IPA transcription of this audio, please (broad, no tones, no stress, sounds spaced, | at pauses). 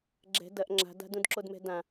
ɡ͡ǁ ɛ̤ d ɐ ʔ ŋ͡ǁ a̤ d a̤ d ũ d ǁ o d m ɛ̤ d ã